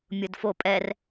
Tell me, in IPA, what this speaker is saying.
mʲ ʊ d f o pʼ ɛ r

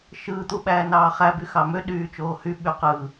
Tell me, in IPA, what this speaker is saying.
ʃ ɯː t̪ u ɓ æː n ɑː χ æ b y x ɑ m ø ɗ yː t͡ʃ oː h y ɓ y q ɯ

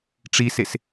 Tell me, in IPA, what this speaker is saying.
ʈ͡ʂ i s e s

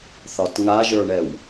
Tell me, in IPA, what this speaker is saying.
θ ɒ t ŋ a ʒ ə˞ ɳ ɛ w

